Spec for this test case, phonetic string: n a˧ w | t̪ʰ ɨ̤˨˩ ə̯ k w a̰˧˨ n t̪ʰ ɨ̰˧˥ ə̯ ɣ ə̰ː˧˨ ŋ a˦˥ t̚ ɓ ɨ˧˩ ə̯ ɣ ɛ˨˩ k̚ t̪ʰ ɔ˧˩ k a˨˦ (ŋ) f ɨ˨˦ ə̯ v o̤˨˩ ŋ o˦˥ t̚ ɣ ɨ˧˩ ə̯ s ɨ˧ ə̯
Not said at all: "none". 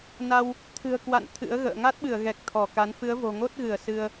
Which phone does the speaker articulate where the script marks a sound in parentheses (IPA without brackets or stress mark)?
n